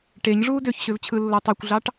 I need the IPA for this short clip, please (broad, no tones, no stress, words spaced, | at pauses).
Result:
ʈeɲʐuː døçɕøvt͡ɕʰɯlːo tˤøkʷɮɑʈ